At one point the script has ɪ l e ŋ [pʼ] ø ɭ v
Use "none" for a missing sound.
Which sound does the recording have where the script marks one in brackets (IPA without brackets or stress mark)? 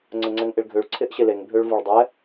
bʱ